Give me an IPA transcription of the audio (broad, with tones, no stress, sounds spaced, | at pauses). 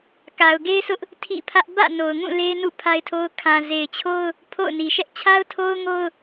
k a˨ ʊ̯ ɡ e˦ ɪ̯ sʰ ʊ˦ ʔ | tʰ ḭ˦˨ pʰ ä˦ ʔ b ä̰˦˨ n o˨ ʊ̯ ŋ ũ˦˨ l e˦ ɪ̯ n ṵ˦˨ pʰ a˦ ɪ̯ tʰ o˦ ʊ̯ kʰ ã˨ z e˨ ɪ̯ t͡ɕʰ o˦ ʊ̯ | pʰ o̰˦˨ ʊ̯ n i˨ ʃ ɛ˦ ʔ t͡ɕʰ a˦ ʊ̯ tʰ o˦ ʊ̯ ŋ o˦ ʊ̯